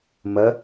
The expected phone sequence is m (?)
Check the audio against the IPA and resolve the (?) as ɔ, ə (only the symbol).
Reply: ə